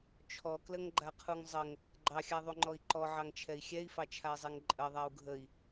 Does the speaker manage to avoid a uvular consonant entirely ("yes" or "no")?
no